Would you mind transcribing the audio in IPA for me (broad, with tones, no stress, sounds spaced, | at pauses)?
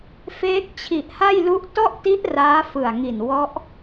f eː˦˥ k̚ t͡ɕʰ i˨˩ ʔ h a˥˩ j l u˦˥ ʔ t ɔ˥˩ ʔ t i˦˥ ʔ r aː˦˥ f ɯ˨˩ a̯ ŋ i˨˩ n w ɔ˦˥ ʔ